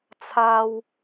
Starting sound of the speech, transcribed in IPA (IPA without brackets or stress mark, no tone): t͡sʰ